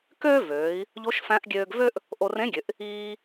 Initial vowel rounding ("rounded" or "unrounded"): rounded